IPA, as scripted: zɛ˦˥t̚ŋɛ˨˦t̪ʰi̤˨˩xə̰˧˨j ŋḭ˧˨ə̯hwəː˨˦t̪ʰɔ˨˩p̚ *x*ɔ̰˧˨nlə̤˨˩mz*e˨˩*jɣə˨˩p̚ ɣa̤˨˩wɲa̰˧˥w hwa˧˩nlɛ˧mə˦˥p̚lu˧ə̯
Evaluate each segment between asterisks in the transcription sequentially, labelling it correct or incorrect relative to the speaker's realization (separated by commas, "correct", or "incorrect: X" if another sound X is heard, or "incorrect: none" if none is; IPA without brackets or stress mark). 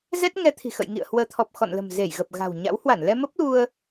correct, incorrect: e˧˩